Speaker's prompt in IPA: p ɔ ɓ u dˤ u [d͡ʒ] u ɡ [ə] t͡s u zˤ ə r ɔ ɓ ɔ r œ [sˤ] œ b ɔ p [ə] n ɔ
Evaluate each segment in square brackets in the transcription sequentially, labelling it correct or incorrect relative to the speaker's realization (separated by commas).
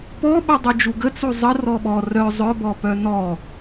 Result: correct, correct, incorrect, incorrect